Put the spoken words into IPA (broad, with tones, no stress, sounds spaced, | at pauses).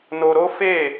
n o˧ ɾ o˦ f e˦˨